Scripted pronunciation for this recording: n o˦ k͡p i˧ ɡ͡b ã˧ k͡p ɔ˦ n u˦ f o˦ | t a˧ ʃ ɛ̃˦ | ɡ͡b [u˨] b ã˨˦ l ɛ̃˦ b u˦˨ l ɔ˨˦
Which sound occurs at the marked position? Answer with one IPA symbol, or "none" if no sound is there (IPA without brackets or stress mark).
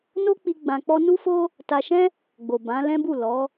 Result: o˨